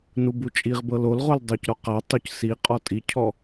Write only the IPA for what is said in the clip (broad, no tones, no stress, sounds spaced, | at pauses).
n u b u t͡ʃʼ i ʁ b ɤ l o l ʁ o l dˤ u c ɾ ɔ q a tˤ u c s i qʼ ɔ tʼ i cʰ ɔ